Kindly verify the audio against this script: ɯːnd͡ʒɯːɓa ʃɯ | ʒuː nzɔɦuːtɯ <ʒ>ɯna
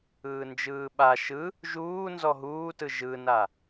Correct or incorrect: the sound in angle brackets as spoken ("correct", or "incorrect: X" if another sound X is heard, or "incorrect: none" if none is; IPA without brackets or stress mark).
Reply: correct